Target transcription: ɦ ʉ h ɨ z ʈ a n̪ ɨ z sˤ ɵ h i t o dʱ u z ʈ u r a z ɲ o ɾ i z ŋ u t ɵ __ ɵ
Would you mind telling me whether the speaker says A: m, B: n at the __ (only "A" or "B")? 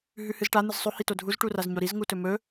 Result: A